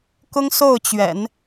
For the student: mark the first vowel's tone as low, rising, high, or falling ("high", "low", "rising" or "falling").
high